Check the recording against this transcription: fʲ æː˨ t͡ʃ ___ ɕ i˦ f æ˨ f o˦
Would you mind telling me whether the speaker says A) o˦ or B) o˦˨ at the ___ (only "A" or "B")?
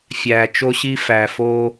A